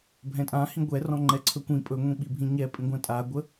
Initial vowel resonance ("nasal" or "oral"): nasal